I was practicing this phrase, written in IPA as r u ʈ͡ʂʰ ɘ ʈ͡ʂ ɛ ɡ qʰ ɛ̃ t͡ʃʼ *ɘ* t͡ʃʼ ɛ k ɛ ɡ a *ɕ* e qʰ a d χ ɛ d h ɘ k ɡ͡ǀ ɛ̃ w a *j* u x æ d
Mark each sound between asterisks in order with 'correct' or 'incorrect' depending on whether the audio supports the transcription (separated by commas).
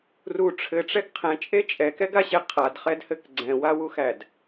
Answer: incorrect, correct, incorrect